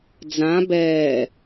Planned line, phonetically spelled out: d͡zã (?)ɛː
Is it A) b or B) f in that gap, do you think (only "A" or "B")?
A